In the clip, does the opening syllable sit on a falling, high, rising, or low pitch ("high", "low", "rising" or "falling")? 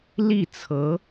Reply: falling